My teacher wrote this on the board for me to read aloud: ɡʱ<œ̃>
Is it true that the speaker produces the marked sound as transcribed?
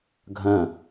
yes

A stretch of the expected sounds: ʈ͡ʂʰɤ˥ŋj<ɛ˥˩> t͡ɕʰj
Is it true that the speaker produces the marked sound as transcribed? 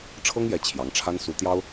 no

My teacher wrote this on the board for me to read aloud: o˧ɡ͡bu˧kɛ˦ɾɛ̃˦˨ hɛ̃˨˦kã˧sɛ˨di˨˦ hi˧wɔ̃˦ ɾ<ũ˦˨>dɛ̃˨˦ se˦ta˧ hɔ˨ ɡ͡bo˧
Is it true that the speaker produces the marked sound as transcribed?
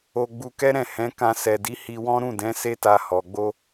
yes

